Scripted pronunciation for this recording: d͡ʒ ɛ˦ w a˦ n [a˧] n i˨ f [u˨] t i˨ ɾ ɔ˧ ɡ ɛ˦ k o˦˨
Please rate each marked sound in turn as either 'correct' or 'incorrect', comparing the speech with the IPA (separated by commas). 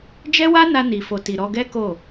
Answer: correct, incorrect